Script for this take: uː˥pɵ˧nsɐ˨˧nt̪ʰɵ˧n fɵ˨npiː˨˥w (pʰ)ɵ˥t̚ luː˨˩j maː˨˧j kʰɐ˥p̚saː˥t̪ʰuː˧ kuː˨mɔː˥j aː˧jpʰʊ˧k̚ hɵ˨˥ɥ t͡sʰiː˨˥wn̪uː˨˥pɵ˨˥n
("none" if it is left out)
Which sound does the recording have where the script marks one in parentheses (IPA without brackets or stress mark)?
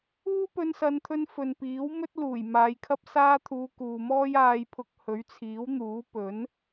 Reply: m